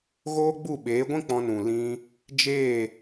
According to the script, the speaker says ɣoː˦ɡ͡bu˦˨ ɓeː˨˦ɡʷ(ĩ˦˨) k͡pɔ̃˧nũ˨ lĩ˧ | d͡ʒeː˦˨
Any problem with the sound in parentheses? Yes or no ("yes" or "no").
yes